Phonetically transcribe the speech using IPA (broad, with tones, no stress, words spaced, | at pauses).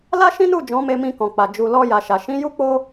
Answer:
la˦ʃĩ˦nu˦˨ d͡ʒɔ̃˨˦me˧mĩ˧kɔ̃˨ k͡pa˨ d͡ʒu˨lɔ˧ ja˨ ʃa˨ ʃĩ˨˦ju˦k͡po˦